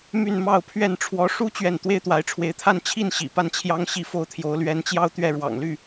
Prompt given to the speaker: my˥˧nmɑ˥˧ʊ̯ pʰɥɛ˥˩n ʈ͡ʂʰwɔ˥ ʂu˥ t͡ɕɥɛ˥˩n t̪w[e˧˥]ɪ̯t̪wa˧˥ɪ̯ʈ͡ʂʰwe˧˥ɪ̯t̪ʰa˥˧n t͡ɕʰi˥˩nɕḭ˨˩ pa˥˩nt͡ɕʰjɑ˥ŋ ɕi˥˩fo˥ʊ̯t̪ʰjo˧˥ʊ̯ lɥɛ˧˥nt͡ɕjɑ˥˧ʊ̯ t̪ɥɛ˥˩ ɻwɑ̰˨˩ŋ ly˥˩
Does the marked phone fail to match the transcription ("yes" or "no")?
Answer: yes